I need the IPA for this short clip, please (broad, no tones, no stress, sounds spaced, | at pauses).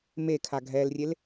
m e kʰ a ɡʱ ɛ l rʲ e l